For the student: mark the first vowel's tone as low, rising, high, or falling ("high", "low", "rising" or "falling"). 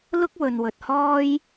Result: high